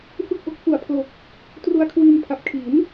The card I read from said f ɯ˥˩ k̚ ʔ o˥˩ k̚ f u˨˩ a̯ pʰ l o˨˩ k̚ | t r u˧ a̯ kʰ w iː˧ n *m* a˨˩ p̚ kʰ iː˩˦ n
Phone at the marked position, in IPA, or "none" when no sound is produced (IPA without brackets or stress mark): pʰ